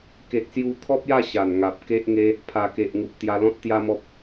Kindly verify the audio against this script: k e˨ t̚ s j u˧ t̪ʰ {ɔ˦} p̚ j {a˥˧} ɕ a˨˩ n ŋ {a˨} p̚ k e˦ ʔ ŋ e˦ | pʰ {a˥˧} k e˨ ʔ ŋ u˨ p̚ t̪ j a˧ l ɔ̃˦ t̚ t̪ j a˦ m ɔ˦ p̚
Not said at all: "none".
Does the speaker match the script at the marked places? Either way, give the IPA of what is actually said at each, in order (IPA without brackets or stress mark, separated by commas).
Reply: ɔ˦, a˥˧, a˨, a˨˩